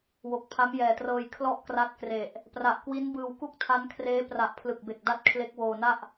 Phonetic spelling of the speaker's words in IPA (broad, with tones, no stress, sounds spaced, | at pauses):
w o˨˩ k̚ pʰ a˦˥ m j ɛː˨˩ t r ɤː˧ j kʰ l ɔ˥˩ ʔ k r a˦˥ t̚ k r e˨˩ ʔ | p r a˨˩ ʔ k w i˦˥ n b ɯː˧ w k u˥˩ k̚ tʰ a˦˥ n kʰ r eː˦˥ p r a˨˩ ʔ pʰ l ɯ˨˩ k̚ b e˨˩ k̚ d a˥˩ t̚ kʰ l e˦˥ k̚ w oː˧ n a˥˩ ʔ